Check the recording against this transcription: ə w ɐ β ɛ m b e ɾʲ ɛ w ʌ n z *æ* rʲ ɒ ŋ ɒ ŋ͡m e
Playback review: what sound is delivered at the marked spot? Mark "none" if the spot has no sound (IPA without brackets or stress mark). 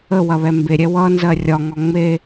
ɜ